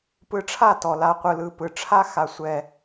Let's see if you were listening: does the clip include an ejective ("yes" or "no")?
no